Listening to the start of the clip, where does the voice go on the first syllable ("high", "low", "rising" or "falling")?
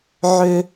high